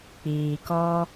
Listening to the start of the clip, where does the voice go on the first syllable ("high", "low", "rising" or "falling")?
low